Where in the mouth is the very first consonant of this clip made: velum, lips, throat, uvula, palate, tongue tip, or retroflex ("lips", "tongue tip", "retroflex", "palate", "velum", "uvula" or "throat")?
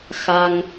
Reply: velum